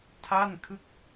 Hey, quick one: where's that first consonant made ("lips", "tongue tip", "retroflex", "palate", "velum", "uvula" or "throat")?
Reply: tongue tip